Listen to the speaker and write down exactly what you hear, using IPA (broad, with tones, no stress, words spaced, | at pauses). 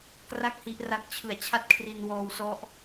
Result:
kra˥˩k̚hi˦˥ʔra˦˥k̚ t͡ɕʰɯ˨˩a̯t͡ɕʰa˥˩t̚kʰri˧n wɔː˧wsɔ˦˥ʔ